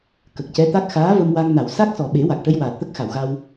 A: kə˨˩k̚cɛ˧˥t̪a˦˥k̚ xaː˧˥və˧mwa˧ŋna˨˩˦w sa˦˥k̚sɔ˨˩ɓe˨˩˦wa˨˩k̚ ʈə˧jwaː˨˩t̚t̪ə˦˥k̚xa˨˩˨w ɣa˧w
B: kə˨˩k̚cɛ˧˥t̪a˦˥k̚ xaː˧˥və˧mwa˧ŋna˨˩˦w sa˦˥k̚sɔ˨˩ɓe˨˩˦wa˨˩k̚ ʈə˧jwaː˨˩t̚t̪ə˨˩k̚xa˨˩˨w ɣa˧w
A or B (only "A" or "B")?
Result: A